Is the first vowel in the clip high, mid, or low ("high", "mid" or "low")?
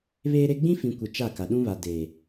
mid